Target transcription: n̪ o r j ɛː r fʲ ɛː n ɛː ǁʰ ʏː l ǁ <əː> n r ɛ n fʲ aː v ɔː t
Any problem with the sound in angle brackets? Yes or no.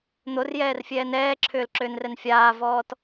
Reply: yes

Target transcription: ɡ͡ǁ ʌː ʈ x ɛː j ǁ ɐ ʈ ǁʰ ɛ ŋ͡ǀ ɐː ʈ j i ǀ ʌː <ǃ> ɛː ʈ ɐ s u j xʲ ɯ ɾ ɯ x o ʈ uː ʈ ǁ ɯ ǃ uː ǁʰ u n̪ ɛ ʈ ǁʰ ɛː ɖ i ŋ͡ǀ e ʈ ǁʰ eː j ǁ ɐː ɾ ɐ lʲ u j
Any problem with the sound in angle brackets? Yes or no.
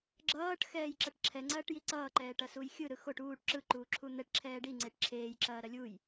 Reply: no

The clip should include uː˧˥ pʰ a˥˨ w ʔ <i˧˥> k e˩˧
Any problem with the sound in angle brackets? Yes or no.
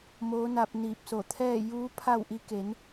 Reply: no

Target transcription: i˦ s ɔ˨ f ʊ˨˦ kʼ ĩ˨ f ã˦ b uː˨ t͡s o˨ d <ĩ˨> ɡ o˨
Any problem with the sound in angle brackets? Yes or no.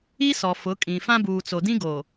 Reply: yes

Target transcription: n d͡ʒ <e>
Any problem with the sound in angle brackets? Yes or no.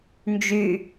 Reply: yes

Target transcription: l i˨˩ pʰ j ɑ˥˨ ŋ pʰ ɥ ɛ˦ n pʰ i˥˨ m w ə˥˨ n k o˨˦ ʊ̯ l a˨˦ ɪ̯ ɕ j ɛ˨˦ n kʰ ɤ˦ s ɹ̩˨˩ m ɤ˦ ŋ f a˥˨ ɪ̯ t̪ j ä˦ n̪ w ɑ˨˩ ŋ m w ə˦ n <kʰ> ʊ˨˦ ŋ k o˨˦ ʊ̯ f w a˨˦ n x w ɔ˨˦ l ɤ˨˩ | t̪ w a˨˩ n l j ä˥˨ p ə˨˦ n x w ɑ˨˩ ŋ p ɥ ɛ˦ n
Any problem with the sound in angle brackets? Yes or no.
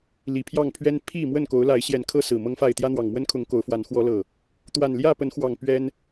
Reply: no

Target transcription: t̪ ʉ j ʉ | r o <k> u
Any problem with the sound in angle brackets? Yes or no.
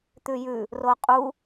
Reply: yes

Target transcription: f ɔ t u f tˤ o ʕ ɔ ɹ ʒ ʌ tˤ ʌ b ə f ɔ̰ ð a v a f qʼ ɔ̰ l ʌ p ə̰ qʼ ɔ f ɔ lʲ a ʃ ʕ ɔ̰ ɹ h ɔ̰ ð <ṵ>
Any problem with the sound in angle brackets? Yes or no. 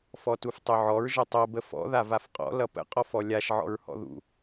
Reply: no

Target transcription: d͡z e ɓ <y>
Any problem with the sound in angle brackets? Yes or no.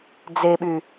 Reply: no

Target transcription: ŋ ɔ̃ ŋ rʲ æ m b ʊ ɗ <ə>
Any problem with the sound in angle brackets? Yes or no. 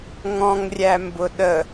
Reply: no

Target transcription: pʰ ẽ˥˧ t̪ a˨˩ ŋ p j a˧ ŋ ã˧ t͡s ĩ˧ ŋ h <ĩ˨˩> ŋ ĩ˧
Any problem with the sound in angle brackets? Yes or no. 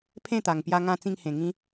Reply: yes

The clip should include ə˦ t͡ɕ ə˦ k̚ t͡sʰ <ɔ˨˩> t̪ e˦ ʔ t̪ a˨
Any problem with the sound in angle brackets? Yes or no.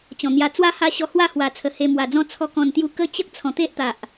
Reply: yes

